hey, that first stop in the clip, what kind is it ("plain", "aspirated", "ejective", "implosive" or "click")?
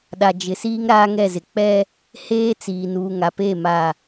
implosive